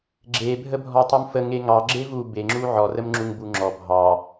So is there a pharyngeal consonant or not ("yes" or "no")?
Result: yes